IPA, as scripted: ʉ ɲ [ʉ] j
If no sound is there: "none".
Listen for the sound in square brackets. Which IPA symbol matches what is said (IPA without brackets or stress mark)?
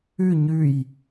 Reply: ʉ